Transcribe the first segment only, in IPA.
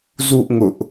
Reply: z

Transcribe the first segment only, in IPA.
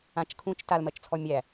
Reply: ã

